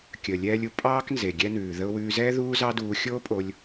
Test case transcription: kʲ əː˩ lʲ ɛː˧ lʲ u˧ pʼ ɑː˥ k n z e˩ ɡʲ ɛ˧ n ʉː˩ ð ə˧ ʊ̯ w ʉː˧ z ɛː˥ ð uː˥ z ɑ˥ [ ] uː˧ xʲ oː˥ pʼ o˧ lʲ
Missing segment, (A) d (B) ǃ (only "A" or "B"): A